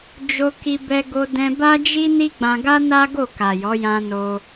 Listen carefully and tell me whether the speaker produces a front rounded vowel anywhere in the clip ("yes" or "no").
no